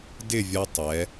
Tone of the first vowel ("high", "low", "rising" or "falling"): falling